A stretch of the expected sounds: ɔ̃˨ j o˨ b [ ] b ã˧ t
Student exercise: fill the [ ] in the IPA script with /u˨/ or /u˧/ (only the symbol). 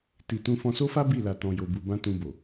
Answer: u˨